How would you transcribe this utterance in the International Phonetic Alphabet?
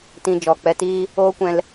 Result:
t ĩ˧ d͡ʒ ɔ˨ k͡p ɛ˧ t iː˦ | oː˦ kʷ ɛ̃˧ l

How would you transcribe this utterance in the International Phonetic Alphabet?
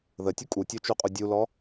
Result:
ð ə tʲ u kʼ u tʲ o t͡ʃ u qʼ u dʲ u l ɔ

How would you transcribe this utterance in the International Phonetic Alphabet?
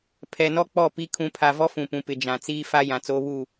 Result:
pʰ ɛ˨ n ɔ˦ k͡p ɔ˦˨ p i˦ kʰ ũ˨ pʰ a˨ v ɔ˦ f ũ˨ p ũ˨ p ɪ˨ d͡ʒ ã˨ t͡s iː˦ f a˦ j ã˨ t͡s oː˦ β u˦˨

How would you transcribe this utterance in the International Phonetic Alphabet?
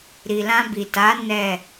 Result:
ɾ i˨ l ã˧ b i˨ t a˨˦ n ɛ˦˨

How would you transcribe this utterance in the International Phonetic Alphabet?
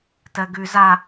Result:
t ɜ ɡ ʉ z a

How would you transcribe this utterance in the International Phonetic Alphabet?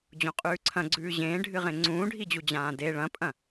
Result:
d͡ʑ õ qʼ ʉː ǀʰ ɐ̃ ɡ͡ǀ ʉː ʑ ẽː ɖʱ ɨ ʁ ẽ ŋ͡ǀ ũː ɖʱ i d͡ʑ u d͡ʑ ãː d e ɭ ɐ̃ pʼ ɐ̃

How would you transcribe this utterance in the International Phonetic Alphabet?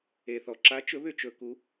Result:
e˩ θ ɔ˩ ǁ a˨˥ t͡ʃ ɵ˨˥ β ʏ˥˩ t͡ʃ ɵ˧˩˧ k u˨˥

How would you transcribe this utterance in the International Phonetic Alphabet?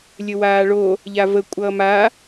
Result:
lʲ ə w aː ɭ o | ʎ a v ə kʷʼ ʌː m a

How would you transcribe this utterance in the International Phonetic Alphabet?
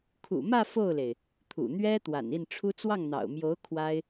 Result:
kʰ ṵ˨˩ m ä˥˧ f o˥˩ ʊ̯ l e˩ ɪ̯ | t̪ʰ ṵ˨˩ n̪ ɥ ɛ˥ t̪ w a̰˨˩ n i˥˩ n ʈ͡ʂʰ u˥ t͡s w ɑ˥˩ ŋ n̪ ɑ̰˨˩ ʊ̯ m j o˧˥ ʊ̯ kʰ w a˥ ɪ̯

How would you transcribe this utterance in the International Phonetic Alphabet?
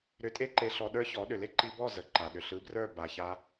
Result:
ɾ ʏ˧ tʼ e˦ ǃ e˧ ɬ ɔ˧ ɗ ə˞˦ ç ɔ˨˦ ɗ ʏ˨ l e˦ ǃ i˧ b ɔ˦˨ z ə˨ ǃ a˨ ɗ ʏ˨ ɬ ɯ˨˦ b r ə˞˦˨ b a˨ ç a˧

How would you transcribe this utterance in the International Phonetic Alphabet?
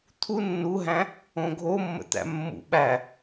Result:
t̪ʰ u nː u ɦ æ̃ | õ ɡʱ o mː ə̰ t̪ æ̰ mː ṵ ɓ æ

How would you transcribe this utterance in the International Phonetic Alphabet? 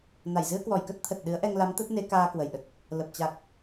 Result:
n a˧˩ j z ɨ˧ ə̯ k w ɔ˧˩ j k ə˦˥ t̚ t̪ʰ ə˨˩ t̚ ɗ ɨ˨˦ ə̯ ʔ ɛ˧ ŋ l a˨˦ m t̪ ə˦˥ t̚ n e˨˦ k aː˧ k w ə˧˩ j ɗ ə˨˩ t̚ | l ə˨˩ p̚ t͡ɕ a˨˩ k̚

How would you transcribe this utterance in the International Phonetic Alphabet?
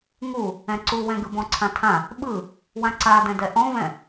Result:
ŋ u | ɛ̃ ǀ u w ɛ̃ ɡ ɯ b ɔ̃ ǀʰ ã tʰ ã | ɓ ɯ | w ã ǀ a d ɛ̃ d ɛ ʔ ɔ̃ v ɛ̃

